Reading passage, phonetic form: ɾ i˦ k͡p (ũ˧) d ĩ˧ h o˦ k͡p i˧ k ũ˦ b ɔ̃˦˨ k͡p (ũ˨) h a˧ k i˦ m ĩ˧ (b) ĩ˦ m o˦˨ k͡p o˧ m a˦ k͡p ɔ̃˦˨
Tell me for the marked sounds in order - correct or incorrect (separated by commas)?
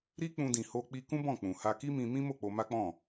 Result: correct, correct, incorrect